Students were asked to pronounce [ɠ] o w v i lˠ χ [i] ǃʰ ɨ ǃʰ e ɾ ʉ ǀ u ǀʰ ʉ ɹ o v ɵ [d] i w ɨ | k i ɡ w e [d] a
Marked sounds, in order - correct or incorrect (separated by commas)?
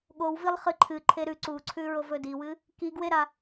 correct, incorrect, correct, incorrect